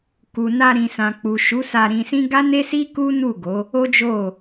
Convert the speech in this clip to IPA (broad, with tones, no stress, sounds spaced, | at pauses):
k u˨ n a˧ ɾ ĩ˨ s ã˨ k͡p u˨ ʃ u˨˦ s a˧ ɾ ĩ˧ s ĩ˦ ɡ a˦ n e˦ s i˦ k u˦ n u˦˨ ɡ o˨˦ | o˦ d͡ʒ o˦˨